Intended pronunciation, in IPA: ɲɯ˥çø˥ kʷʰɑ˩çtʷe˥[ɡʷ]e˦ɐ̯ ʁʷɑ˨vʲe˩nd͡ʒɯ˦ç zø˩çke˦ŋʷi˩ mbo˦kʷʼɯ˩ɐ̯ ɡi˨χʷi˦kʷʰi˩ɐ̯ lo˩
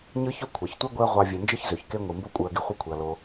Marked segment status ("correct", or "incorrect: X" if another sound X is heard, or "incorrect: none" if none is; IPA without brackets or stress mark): correct